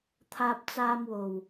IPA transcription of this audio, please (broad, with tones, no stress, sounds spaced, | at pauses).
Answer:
t̪ʰ aː˧ p̚ t͡s aː˧ m w o˨˩ w